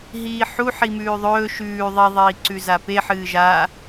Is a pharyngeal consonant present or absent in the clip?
present